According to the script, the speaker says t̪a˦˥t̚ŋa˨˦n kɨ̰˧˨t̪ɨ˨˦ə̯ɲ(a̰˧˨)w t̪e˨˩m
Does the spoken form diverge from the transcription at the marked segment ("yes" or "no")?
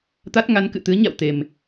no